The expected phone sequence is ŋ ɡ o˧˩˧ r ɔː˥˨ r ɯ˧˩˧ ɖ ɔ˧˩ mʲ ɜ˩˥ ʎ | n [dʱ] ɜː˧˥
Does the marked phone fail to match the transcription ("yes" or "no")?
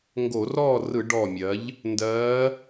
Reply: yes